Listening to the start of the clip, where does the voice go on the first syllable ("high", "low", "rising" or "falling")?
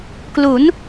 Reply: rising